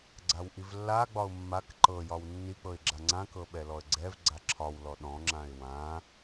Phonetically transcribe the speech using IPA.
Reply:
ɡ͡ǀawʔivlːaɡ͡bɒʊ̯ mːak ǃɤjɒw nːik͡pɤɪ̯ ɡ͡ǁaŋ͡ǀãkɤ ɓɛlɔə̯ɡ͡ǀɛvɡ͡ǀa ǁʰɒwlɔ ɗɔ̃ŋ͡ǁãɪ̯ wã

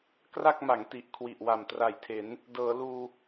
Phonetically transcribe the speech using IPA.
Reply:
kra˥˩k̚ma˩˦ŋti˨˩ʔ kʰwi˨˩ʔwa˨˩mtra˨˩jtʰe˩˦n | dɤː˩˦luː˧

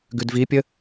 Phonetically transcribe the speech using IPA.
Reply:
ɡʉdvipʲə

